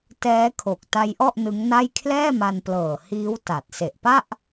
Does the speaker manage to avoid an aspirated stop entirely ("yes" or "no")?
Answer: no